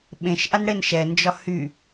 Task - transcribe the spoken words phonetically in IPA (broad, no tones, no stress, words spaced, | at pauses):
ɓẽʃʔan ɽenʃɛnd͡ʒɒ hy